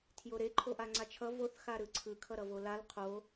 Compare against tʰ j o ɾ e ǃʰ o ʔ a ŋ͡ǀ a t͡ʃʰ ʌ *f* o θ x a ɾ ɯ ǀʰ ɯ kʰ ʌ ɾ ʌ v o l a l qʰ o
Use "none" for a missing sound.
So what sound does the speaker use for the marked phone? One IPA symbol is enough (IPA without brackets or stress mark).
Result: v